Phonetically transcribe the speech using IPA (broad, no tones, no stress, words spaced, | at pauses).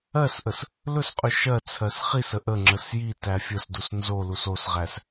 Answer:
ɜsʔəs | lɵsqʼʉ ʃɜt͡sʰɜs χisə ʔəŋ͡ǁəs ji tæfʲəsdus nzolus osʁæs